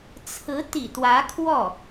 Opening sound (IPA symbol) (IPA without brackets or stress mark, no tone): t͡sʰ